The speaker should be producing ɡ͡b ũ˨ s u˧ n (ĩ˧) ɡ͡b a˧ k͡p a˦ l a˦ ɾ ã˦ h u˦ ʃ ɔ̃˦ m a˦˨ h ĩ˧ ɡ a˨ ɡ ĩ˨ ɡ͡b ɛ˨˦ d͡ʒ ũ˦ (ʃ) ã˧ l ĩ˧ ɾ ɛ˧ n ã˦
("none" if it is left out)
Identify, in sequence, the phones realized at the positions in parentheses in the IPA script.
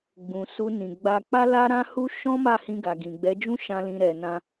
ĩ˨, ʃ

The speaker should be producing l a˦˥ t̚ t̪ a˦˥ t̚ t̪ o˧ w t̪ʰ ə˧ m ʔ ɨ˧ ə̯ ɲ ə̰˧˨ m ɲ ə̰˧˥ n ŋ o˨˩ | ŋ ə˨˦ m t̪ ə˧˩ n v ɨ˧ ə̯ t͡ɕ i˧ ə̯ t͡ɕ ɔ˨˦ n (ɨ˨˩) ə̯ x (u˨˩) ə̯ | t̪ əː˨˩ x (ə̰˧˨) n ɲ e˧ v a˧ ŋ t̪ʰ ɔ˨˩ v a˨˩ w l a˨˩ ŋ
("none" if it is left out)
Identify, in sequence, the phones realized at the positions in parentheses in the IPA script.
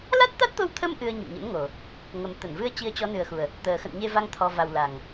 ɨ˨˩, u˨˩, ə̰˧˨

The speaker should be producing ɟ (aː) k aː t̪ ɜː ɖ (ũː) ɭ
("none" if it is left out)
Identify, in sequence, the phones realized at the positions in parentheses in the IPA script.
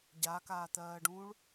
a, ũː

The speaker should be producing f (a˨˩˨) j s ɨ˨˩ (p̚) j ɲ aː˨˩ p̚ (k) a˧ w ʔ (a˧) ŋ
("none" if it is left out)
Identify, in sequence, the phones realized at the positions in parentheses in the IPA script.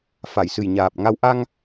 a˨˩˨, none, ŋ, a˧

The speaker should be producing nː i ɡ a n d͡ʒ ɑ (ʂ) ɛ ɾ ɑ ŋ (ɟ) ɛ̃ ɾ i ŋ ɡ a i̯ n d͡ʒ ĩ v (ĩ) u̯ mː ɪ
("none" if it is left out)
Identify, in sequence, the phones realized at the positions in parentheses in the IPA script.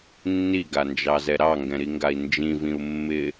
z, ɡ, ĩ

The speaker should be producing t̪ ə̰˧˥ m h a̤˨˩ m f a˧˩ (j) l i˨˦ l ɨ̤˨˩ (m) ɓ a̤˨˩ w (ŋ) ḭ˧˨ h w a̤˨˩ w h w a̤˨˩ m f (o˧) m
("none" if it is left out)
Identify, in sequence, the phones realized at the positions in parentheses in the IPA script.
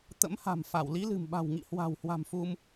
w, m, ŋ, u˧

